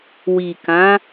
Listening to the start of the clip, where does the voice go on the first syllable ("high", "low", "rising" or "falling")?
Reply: low